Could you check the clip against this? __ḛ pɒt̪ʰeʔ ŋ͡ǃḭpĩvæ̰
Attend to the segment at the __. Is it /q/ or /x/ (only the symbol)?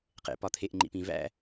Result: q